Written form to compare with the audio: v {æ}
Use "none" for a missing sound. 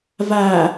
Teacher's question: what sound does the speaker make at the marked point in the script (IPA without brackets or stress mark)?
æ